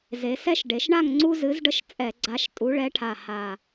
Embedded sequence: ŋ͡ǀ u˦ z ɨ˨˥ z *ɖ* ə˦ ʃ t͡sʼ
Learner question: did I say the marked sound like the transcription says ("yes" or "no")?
yes